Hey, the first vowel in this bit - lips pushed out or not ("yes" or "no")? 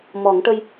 yes